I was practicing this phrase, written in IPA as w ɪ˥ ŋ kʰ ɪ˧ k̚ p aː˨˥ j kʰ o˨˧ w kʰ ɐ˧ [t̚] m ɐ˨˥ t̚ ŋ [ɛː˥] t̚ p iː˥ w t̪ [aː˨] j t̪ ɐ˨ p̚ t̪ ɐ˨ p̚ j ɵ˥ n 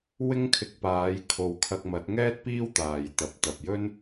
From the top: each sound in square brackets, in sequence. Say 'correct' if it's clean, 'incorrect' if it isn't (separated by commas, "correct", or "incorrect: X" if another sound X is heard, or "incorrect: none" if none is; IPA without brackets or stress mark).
incorrect: k̚, correct, correct